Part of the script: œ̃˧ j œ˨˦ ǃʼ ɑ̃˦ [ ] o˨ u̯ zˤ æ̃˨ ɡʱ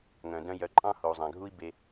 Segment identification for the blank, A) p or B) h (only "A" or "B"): B